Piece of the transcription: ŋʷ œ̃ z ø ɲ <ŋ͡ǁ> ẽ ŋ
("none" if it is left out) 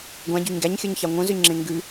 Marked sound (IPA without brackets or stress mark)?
ŋ͡ǁ